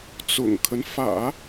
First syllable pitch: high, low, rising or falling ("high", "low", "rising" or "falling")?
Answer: low